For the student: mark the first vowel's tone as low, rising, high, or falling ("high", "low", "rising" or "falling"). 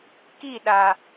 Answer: falling